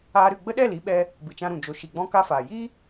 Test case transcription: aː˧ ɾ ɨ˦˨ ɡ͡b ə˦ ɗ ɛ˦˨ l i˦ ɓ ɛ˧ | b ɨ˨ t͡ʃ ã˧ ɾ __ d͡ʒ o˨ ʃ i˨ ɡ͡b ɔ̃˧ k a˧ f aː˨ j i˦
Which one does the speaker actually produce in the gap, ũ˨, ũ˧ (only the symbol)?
ũ˨